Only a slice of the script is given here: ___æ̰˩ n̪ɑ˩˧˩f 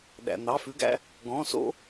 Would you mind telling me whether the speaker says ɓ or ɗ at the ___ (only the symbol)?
ɗ